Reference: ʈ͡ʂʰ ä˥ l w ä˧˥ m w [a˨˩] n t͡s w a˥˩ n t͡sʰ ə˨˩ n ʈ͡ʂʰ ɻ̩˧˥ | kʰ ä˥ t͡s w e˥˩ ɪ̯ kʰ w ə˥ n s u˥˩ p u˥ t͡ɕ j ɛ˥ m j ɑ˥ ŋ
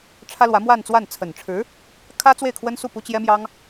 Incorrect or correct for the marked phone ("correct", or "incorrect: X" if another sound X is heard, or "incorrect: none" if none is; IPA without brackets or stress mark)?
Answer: incorrect: a˥˧